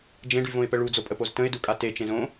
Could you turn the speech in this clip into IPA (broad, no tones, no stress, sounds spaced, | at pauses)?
d͡ʒ ẽ ɖ y v õ ɪ̯ p ə ɭ u d͡z o pʼ ə p o z t ə̃ ɪ̯ d u kʼ a t e t͡ʃ ẽ z õ